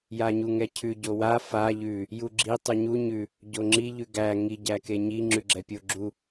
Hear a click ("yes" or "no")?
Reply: yes